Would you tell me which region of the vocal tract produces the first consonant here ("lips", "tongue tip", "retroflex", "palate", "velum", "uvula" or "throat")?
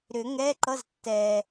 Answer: tongue tip